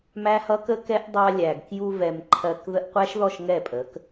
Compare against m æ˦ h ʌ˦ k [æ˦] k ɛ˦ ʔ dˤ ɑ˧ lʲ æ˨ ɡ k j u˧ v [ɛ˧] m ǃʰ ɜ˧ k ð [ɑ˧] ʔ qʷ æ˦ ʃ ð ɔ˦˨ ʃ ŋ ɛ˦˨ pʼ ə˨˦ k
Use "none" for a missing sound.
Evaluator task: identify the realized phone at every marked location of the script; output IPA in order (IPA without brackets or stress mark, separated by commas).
ə˦, ɛ˨, ə˧